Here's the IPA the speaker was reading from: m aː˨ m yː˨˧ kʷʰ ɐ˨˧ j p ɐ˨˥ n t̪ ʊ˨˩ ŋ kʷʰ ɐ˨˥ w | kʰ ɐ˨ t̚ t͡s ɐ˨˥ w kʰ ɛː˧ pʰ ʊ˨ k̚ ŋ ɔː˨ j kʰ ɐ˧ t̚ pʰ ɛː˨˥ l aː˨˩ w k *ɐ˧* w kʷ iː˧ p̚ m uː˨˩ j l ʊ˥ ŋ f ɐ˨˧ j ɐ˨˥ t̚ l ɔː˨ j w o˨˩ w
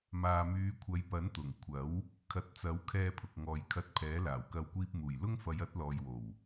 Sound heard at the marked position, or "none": ɐ˧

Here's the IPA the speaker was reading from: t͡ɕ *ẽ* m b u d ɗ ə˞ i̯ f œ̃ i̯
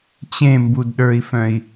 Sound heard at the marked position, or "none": ẽ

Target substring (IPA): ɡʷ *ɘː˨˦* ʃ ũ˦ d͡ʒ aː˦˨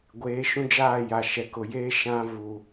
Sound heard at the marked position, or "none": eː˨˦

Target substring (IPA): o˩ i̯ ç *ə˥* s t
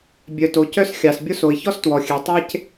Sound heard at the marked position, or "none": ɔ˥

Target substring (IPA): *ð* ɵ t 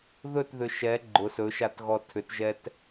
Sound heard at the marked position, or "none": ð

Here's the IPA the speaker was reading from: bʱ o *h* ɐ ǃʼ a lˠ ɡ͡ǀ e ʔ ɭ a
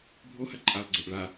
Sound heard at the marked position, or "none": h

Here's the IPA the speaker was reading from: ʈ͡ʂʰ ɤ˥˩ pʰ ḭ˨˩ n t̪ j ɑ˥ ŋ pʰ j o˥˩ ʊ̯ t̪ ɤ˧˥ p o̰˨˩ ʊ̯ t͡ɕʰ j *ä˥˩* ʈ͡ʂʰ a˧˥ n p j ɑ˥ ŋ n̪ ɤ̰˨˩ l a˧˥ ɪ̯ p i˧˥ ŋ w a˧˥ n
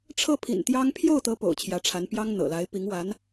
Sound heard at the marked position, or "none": ä˧˥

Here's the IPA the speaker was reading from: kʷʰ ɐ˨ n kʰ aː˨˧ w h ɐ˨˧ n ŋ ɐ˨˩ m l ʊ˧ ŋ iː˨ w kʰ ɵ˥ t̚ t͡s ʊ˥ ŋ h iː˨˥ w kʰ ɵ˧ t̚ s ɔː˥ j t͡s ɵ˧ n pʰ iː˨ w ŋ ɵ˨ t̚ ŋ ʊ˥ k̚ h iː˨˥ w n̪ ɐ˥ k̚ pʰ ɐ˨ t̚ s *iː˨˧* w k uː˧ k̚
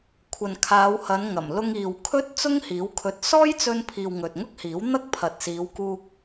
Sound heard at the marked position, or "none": iː˨˧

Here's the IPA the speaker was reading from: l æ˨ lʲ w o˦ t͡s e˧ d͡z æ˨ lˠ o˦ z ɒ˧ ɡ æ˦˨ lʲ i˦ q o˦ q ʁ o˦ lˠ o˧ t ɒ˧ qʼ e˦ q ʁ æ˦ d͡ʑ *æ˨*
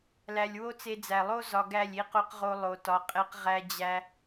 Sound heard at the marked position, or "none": æ˦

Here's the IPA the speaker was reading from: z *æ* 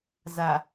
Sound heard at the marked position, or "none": a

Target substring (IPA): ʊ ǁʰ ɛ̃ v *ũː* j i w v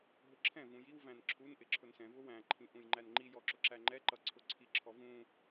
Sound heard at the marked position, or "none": ũ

